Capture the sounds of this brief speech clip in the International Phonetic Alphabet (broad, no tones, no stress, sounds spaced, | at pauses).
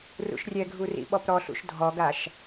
r ṵ ʃ rʲ ɛ ɡʱ u r ḭ ɓ ɔ p ɾ ɔ ɬ ṵ ʃ dʱ ɔ ɡ a ʃ